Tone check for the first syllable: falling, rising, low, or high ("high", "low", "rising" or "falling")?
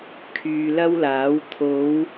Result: low